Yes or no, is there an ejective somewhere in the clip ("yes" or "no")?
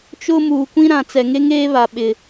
no